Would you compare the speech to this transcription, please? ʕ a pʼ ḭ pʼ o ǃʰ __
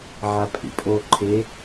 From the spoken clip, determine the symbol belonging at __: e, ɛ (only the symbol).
e